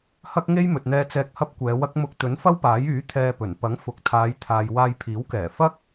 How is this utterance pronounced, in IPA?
hɐ˥k̚ŋe˥j mɵ˨t̚n̪ɛː˧t͡sɛː˧k̚ hɐ˥p̚kʷɛː˨˧wɐ˥k̚ mʊ˧k̚t̪ɵ˨˥nfɐ˥wpaː˨˥j yː˨˥ t̪ʰɛː˧pɵ˨˩n pɐ˨˥ŋfʊ˨k̚t̪ʰaː˨˧jt̪ʰaː˨j waː˧jpʰiː˨˥wkɛː˨˩ fɐ˥k̚

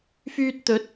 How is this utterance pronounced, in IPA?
fyː˧t̚t̪ɵ˨˥t̚

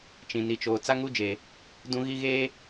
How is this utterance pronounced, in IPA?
t͡ʃĩ˨ni˨t͡ʃoː˨ t͡sa˦ŋu˦d͡ʒeː˨ | dũ˦ɣi˦ɣeː˦

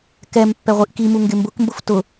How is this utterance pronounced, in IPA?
kɛm pːɛʁʷiʔkimu ŋɡɪmbʊkmbʊf tʊ

